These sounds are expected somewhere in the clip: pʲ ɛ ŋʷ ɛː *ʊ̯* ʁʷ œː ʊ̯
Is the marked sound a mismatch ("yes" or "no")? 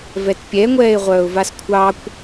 yes